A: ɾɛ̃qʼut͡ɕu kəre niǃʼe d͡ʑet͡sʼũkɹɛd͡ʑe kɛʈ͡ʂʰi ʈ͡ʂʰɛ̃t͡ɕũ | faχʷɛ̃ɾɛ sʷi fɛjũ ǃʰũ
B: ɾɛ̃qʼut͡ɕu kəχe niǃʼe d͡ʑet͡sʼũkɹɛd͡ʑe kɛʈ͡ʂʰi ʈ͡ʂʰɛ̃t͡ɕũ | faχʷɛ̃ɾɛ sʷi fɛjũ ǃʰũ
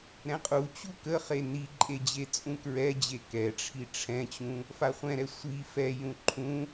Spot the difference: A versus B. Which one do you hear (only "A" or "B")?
B